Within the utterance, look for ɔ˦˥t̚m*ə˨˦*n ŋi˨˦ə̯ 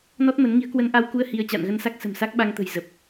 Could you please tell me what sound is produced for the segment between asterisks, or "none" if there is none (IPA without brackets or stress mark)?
ə˨˦